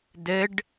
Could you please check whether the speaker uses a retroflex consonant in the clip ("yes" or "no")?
yes